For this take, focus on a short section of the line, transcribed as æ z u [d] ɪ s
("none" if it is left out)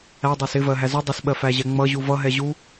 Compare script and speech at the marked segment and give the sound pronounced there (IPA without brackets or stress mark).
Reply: dˤ